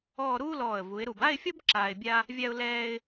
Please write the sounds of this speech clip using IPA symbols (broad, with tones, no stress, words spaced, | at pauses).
ɔː˥˧ ɾuː˥lɔː˧˩ə̯ vu˩˧ɪ̯ɾu˧˩b a˥˧ɪ̯fʲɔ˥b ǁaː˧ɪ̯bʲa˥ | vʲa˧ʊ̯lɛː˧ɪ̯